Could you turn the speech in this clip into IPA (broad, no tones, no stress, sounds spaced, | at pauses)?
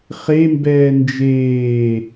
χ e m b ɛː n d͡ʒ eː